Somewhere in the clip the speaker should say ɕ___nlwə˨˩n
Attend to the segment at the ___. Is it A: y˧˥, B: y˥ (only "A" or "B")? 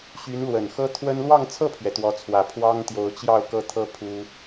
A